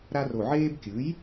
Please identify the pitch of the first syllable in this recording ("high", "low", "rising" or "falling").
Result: high